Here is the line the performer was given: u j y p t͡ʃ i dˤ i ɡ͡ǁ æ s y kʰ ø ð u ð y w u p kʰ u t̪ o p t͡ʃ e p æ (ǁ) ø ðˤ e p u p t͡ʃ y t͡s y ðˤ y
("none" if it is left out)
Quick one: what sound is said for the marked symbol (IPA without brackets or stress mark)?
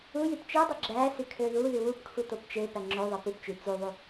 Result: ŋ͡ǁ